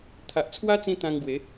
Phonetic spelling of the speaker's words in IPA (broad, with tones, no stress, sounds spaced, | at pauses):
t̪ʰ a˨ ʔ t͡sʰ w a˦ t͡s ĩ˧ t̪ ã˧ ŋ ɡ w e˨˦